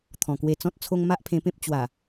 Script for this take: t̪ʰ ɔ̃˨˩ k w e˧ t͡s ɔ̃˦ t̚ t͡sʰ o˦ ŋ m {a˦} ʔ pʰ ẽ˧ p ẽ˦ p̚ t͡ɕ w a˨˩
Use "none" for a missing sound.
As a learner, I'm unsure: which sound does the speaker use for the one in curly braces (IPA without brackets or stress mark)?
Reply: a˦